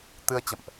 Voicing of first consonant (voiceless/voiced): voiceless